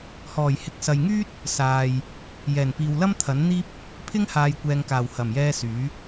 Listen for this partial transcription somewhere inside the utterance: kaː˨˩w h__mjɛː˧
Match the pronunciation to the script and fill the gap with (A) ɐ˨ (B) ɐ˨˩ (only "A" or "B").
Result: B